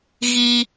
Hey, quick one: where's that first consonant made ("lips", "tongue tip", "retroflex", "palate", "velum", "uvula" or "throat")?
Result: velum